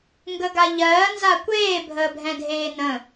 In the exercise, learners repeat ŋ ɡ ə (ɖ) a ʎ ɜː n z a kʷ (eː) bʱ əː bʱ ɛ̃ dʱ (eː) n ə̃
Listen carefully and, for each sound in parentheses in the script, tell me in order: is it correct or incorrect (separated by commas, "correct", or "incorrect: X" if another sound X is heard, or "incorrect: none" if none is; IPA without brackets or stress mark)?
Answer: incorrect: ɡ, correct, correct